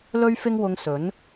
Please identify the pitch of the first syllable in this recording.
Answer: high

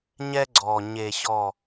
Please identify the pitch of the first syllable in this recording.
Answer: high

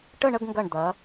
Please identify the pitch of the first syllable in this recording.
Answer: falling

